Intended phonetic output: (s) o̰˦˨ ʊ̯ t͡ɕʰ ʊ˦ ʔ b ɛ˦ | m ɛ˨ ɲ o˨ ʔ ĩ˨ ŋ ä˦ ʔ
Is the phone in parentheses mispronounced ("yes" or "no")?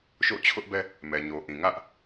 yes